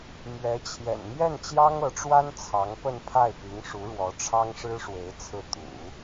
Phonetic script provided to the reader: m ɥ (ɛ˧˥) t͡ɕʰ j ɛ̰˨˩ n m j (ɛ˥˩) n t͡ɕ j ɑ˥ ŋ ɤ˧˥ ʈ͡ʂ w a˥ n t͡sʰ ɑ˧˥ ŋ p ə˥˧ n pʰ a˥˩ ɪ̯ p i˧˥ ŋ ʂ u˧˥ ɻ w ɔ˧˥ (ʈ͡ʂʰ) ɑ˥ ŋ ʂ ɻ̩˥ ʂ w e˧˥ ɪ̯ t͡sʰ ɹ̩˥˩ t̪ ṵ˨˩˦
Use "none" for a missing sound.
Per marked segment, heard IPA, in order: ɛ˧˥, ɛ˥˩, ʈ͡ʂʰ

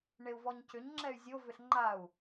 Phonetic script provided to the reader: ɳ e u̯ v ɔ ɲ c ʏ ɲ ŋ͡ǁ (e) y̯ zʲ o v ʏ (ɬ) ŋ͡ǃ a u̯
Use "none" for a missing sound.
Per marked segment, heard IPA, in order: ɛ, ɬ

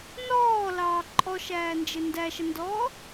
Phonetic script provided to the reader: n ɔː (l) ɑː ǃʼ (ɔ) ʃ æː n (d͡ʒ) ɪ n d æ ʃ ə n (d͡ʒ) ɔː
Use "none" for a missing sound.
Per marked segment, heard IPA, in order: l, ɔ, d͡ʒ, d

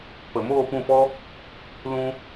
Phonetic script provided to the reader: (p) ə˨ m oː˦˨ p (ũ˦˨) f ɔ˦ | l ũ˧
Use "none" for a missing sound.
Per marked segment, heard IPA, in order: p, ũ˦˨

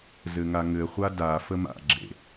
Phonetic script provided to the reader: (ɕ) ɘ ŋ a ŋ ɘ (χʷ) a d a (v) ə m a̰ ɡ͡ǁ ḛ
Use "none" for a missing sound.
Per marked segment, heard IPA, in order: z, χʷ, f

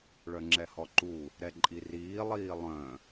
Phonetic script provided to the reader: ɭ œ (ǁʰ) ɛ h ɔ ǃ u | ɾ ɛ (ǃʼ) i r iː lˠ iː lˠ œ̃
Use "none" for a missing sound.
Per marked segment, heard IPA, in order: ŋ͡ǁ, ǃʼ

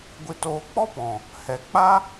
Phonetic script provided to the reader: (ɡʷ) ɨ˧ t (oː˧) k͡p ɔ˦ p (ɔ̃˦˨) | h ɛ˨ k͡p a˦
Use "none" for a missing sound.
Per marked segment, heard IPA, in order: ɡʷ, oː˧, ɔ̃˨

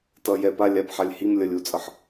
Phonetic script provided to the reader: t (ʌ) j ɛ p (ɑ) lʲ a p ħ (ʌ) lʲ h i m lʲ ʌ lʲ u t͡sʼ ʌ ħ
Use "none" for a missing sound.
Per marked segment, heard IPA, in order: ʌ, a, a

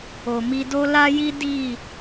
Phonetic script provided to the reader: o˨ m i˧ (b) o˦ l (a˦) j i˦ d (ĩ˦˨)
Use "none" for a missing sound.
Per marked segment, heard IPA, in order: d, a˦, i˦˨

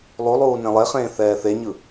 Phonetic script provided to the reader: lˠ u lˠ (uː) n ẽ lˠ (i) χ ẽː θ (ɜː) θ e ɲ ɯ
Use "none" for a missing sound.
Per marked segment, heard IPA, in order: uː, e, ɛː

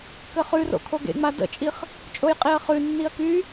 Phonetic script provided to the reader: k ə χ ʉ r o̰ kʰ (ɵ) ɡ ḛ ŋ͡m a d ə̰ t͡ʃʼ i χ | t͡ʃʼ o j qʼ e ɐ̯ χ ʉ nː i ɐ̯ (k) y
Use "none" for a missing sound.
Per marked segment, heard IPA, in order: o, k

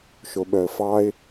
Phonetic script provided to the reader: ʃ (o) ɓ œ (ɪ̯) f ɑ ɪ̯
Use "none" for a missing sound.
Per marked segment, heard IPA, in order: o, ə̯

